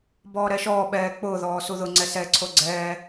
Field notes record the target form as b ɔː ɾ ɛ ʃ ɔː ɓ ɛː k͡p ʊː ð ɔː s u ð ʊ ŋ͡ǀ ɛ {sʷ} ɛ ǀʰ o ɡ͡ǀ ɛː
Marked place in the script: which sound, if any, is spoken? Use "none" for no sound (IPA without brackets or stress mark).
s